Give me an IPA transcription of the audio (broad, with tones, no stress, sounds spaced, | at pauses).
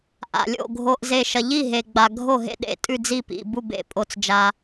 ʔ a̰˨ lʲ o̰˥˩ ɡʱ o˨ ʔ z e˨ ʃ ɐ˨ ʎ i˥˩ ɦ e˨ ɡ͡b a˨ ɡʱ o˥˩ ɦ ḛ˥˩ ɗ ḛ˥˩ tʼ ʉ˥˩ d͡z i˥˩ p ḭ˨ b u˥˩ b ḛ˥˩ pʼ o˨ t͡s d͡ʒ a˨